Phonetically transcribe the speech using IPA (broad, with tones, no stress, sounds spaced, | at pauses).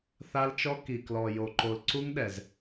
θ a˦ l t͡ʃ ɔ˦ k i˨ k l ɔ˨ j o˨ ǃ o˨ l ǀ u˦ ŋ ɗ ɛ˨ z